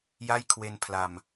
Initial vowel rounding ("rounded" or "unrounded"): unrounded